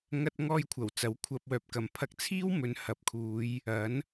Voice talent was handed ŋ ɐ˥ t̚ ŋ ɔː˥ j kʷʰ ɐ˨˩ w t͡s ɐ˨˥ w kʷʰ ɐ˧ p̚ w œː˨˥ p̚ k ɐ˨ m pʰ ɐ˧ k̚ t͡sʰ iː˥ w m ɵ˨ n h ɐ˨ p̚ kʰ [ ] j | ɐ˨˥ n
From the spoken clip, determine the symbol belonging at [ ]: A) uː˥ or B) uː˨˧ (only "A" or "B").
B